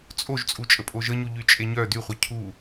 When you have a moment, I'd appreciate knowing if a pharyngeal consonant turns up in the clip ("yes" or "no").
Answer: no